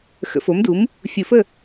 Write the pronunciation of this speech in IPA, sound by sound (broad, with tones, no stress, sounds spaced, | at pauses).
x ə̰˨˩˦ f o˩˥ m d u˩˥ m | fʲ u˨˩˦ f ə˥˨